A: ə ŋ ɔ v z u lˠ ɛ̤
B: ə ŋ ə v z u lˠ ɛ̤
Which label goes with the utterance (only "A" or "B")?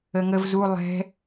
B